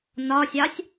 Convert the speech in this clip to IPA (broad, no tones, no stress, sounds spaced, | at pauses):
n ɒ sʲ ɑ sʲ